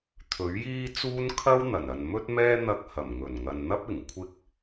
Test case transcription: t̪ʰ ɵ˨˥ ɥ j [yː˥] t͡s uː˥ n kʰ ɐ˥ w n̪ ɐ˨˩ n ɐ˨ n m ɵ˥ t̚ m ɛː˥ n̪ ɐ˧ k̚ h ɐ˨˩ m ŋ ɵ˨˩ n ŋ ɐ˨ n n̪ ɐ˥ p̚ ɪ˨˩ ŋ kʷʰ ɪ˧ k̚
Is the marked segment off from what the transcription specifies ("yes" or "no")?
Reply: yes